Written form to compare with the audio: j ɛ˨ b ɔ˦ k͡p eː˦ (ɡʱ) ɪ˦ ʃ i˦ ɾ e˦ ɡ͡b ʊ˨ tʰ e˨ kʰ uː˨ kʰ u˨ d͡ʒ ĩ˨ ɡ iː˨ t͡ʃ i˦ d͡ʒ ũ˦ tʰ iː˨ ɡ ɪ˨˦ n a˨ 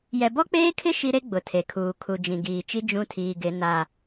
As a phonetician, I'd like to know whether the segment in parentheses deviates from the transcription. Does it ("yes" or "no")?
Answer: yes